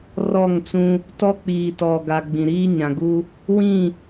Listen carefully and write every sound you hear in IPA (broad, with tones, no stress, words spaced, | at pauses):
rɔ˦˨ŋt͡sũ˦ | tɔ˦k͡piː˨tɔ˨ɡa˨ ɡ͡bĩ˨ɾiː˦ɲã˨ɡu˦ | wĩ˦˨